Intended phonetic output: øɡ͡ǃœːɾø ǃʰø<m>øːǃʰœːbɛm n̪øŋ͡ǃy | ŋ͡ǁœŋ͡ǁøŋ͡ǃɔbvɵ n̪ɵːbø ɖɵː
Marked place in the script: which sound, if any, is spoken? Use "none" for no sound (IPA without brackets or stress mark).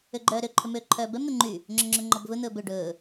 m